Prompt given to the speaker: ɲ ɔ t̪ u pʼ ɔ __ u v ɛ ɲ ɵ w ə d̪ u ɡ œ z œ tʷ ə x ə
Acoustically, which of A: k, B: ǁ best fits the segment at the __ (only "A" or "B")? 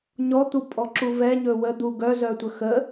B